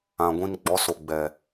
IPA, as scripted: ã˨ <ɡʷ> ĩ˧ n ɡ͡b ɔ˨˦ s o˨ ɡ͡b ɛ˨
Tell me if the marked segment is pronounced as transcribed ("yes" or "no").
yes